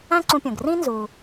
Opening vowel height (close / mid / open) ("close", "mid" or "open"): open